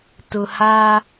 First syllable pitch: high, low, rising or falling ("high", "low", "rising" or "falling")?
low